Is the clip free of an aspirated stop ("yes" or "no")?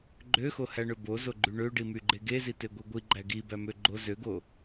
yes